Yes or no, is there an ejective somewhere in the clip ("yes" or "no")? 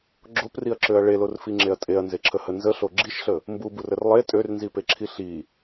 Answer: yes